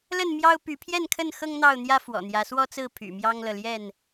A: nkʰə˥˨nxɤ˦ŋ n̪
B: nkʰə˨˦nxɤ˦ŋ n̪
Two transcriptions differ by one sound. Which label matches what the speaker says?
A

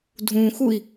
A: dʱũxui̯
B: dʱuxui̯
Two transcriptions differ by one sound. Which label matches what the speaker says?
A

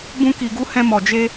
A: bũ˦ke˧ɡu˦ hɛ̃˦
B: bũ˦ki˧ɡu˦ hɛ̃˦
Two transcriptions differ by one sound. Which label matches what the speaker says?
B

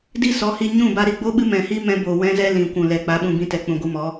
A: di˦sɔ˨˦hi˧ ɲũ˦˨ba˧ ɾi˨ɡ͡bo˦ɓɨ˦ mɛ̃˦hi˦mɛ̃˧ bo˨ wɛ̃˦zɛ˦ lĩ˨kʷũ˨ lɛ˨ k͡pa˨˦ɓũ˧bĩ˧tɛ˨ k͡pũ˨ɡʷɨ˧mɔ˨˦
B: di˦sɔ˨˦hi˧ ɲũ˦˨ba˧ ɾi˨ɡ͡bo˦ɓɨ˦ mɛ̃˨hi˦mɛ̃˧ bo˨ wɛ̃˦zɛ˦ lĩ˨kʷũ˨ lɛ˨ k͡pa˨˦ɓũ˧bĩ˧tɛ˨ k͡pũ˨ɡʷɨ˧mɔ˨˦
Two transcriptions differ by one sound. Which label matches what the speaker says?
B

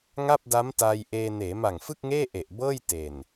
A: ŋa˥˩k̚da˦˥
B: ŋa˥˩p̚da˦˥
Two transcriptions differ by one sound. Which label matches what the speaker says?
B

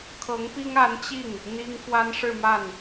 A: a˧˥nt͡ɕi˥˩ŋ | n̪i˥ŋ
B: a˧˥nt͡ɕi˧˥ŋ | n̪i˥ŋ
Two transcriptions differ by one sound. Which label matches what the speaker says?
A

